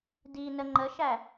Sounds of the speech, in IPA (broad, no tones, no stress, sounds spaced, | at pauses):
d i n ə ŋ͡ǃ ə ʃ æ